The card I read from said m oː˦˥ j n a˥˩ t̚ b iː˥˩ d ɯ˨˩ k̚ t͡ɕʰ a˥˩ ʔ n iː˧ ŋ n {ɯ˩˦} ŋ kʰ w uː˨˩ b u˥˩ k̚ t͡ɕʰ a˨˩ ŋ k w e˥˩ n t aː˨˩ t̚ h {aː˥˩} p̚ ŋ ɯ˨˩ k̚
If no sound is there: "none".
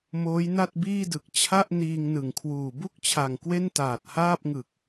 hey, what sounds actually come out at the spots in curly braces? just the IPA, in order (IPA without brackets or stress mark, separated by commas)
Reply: ɯ˨˩, aː˥˩